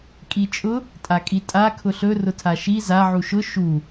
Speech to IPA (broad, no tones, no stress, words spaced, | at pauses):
kʼit͡ʃʼʊ | tʼakʼitʼa kʰʊɬɵ rʊtʰaʃi za ʕuʃʊ ʃu